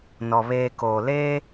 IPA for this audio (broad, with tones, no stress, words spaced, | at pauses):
nɔ˨ βeː˨ koː˨leː˦